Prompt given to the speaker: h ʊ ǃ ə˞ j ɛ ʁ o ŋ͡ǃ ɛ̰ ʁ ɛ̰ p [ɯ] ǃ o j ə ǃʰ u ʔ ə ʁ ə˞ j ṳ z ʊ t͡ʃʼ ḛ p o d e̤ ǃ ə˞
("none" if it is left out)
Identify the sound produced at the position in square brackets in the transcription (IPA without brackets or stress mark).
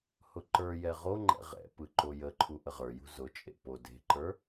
ɯ